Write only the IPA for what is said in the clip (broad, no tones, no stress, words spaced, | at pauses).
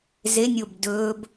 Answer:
zenʲob dɵb